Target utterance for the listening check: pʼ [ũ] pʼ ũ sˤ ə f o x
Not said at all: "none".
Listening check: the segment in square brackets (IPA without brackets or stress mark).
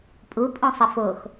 u